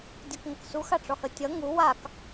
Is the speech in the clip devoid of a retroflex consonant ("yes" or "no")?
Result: no